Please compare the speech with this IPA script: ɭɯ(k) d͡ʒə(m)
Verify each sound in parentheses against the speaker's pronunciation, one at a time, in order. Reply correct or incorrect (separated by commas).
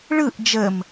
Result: incorrect, correct